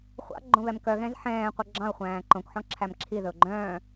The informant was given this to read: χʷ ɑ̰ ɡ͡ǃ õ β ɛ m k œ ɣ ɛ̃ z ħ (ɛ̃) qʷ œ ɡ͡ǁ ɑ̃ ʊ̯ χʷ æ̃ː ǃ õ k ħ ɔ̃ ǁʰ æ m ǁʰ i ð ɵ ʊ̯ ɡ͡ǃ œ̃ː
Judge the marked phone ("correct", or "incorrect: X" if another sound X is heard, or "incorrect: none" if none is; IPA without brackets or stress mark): incorrect: ɛ̃ː